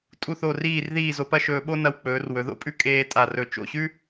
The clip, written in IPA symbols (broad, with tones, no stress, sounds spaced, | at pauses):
tʼ u˥˧ θ o˥˧ r iː˥˧ r ð iː˥˧ z o˧ p ɐ˥ ʃ ɵː˧ ɓ o˥ n ɐ˧ w k͡p ɵː˩˧ r w ɵ˩˧ ð o̰˥ pʼ ʉ˥ kʼ eː˧ tʼ a˧˩ r ɵ˧˩ t͡ʃ o̰˧˩ ɕ ʉ˥